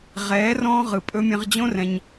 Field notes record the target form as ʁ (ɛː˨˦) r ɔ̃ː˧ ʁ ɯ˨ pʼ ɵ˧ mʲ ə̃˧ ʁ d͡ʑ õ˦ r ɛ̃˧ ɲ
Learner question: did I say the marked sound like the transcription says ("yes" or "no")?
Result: yes